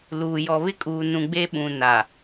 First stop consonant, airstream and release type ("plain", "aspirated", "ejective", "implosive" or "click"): ejective